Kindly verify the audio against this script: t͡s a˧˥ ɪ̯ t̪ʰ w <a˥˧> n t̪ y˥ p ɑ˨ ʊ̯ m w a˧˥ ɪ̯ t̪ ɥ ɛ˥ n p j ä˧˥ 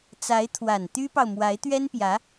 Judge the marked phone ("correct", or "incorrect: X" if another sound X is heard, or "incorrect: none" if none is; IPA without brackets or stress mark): incorrect: a˨˩